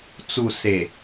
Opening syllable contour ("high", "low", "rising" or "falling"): low